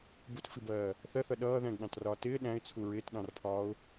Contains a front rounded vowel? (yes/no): no